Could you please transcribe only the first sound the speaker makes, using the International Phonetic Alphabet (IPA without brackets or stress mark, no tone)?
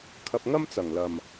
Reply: kʰ